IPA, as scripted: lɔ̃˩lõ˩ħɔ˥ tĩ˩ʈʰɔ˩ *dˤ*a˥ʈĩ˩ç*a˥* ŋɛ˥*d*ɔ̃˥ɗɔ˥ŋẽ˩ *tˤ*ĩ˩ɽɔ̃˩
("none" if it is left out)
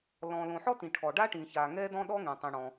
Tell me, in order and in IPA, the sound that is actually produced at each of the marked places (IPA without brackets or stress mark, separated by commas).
ɖ, a˩, d, tˤ